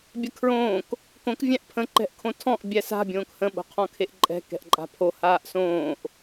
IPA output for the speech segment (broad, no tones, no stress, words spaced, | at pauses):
bʲəkʰɹõːk | kõk vʲæ̃ʔpʰə̃ ǃɛ̤ʔkʰõtʰɔ̃ʔ bʲæsa̤ bʲõːkhə̃ ɓo̤qʰɔ̃kʰeʔǃʼɛ̤ kɛ̤ʔǃʼa̤pʰo haːʔsõːʔ